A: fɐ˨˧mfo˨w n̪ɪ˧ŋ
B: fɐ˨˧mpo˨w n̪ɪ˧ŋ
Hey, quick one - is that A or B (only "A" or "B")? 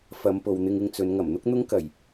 B